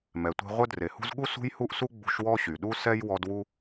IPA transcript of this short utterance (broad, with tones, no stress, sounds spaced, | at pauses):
m ɛ˩ tʷ e̤˦ ʁʷ œ˦ d r e˩ h ṳ˦ z ɠ u˥ s ṳ˥ j h u˥ ʔ s u˥ ɡ͡b ṳ˦ ʃ w ɔ˥ ɕ y˩ ɗ u˥ s ɛ˥ j w ɔ˦ d w u˥